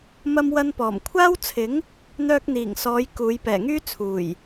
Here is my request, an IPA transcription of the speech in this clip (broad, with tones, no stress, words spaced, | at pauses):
mɐ˧mwɐ˧npɔː˨˩mkʷʰaː˥w t͡sʰɪ˨˥ŋ | n̪œː˧k̚n̪iː˨˩ŋsɔː˨˧j kuː˨˧j pɛː˨˩ŋyː˥ t͡sʰuː˨˩j